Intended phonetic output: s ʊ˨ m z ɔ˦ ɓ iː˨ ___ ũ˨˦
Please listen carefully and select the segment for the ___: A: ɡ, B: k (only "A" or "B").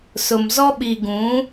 A